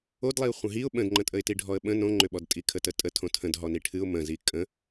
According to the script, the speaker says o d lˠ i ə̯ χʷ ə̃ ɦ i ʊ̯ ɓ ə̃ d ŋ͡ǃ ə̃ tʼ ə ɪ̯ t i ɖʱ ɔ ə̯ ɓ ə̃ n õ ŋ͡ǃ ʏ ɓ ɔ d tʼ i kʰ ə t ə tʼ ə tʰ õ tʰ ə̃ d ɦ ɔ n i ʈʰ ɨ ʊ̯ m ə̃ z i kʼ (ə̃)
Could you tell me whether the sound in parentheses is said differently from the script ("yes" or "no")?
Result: no